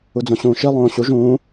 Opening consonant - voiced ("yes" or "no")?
yes